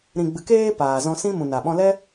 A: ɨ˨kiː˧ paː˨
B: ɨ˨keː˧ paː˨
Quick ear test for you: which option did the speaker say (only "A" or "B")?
B